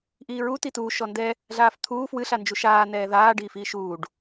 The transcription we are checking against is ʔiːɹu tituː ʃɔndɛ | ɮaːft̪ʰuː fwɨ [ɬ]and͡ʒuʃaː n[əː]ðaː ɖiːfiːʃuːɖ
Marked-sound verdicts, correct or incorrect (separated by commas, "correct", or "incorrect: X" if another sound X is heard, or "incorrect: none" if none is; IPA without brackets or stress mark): correct, incorrect: ɛː